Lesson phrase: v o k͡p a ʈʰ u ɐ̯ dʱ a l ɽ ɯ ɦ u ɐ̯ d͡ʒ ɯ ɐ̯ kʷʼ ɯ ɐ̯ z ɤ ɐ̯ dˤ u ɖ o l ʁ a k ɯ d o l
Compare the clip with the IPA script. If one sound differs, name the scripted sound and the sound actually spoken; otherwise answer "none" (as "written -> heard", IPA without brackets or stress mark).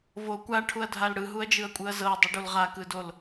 k͡p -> kʷ